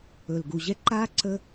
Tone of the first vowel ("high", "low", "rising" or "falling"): low